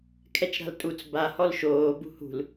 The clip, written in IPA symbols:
kʰɛt͡ʃɾa̤ltʼut͡s ba hɔlʃoː bṳhṳl

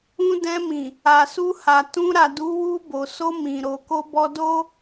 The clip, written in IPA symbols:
ũ˧dɛ̃˧mĩ˨ | a˨su˧ha˨ tũ˧ ɾa˨du˨˦ wu˧bo˨so˧ mĩ˨ɾo˨ko˧ bɔ˧do˦

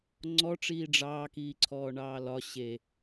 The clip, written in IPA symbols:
ŋ͡ǀɔʈ͡ʂiː ɖ͡ʐɑːkiːǀʰɔː ɳɑːlɒ ɕe

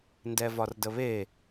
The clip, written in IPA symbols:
ndɛvɒrdəβe

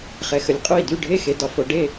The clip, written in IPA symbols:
χɛ˨xə˨lʲqʼo˥˩i̯ dy˥˩ɖʱe˥˩xe˨ dɒ˨fo˨ ɖe˥˩

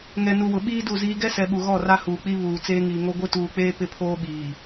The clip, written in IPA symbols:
ŋɛ˨nu˨ wʊ˨ɓiː˦du˦˨ziː˦ ɡɛ˦sɛ˨ ɓu˨ɣɔ˦˨ra˦ huː˨k͡pi˦ βuː˨t͡seː˦ŋiː˨ŋo˦ ɡʷɪ˦tuː˨k͡peː˦ pɪ˦pʰoː˦ ɓiː˨

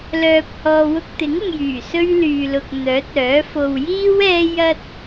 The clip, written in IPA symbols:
lœː˧p̚hɔː˧wʊ˥k̚ t̪ɪ˨˥ŋ ʊ˧ŋjyː˨˩ sɵ˥ɥlyː˨lʊ˨k̚ n̪œː˨˥t̚œː˨˥fo˧w jiː˥w ɛː˥ jɐ˥t̚

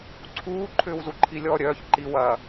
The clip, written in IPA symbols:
ǀʰuː ǃʰʏːwzuǃʰilʲɔ ɾʲœːç ǃi wɐː

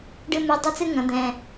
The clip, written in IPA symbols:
ɖɨ˥mɨ˧˥˧ dˤɨ˥t͡sɨ˥ŋɐ̃˩˥ d̪ɛ̃˧˥˧

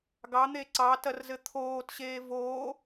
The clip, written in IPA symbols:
ɡɑn̪e ǀɑtɐrzɘ t̪ʰoːtɕeː voː

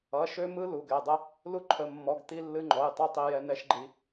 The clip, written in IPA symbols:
ʌ˩˧˩ʃø˧mɯ˧ lu˩˧˩ɡɛ˩˧˩dˤə˧ | lu˧ǃʰə˩˧˩mːɔ˩˧˩ɡ t̪i˧lːɨ˧ŋ͡ǃɔ˩˧˩jtˤʌ˧ tˤi˧jɛ˧nɛ˧ʃɡ͡ǃi˧

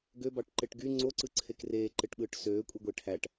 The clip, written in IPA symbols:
ɡøbɑʈǃeʈ ɡy ŋ͡ǀoǀɯǀʰek reːǃeʈɓɯːʈ søːkʷʼiɡʷe ʈʰæʈ

